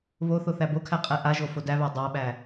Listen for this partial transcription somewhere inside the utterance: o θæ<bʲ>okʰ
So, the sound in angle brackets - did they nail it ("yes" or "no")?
no